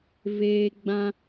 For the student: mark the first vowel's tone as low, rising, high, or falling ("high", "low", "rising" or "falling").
high